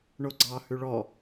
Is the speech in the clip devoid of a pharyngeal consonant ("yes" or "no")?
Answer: yes